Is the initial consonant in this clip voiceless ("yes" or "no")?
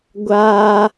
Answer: no